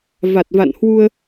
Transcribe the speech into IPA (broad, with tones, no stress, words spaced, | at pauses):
va˨˩t̚va̰˧˨nhwu˧ə̯